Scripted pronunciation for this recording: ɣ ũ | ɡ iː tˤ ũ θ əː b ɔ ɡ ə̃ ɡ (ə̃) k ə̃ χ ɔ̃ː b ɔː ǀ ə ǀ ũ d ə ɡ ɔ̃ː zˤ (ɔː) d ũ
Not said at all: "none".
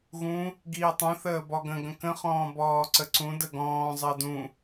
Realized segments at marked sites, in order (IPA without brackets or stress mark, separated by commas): ə̃, əː